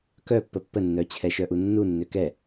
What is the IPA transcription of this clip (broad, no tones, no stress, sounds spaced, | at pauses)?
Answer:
k œ pː ə pː ə nː œ t͡ɕʰ ɛ ʃ œ ʔ u nː u nː ø k ɛ